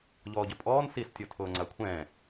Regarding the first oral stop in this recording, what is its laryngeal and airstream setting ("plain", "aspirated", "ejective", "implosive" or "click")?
plain